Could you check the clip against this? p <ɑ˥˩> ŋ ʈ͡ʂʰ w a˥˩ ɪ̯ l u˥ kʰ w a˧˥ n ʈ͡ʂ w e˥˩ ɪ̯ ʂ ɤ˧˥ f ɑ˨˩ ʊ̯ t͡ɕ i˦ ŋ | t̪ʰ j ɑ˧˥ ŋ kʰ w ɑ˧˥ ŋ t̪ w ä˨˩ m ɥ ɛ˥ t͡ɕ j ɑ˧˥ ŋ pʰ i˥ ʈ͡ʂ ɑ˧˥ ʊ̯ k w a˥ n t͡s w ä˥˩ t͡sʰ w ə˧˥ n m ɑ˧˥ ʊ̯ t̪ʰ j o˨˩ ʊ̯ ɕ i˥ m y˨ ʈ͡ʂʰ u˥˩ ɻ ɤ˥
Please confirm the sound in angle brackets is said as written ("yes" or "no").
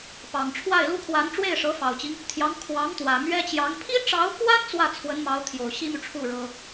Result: no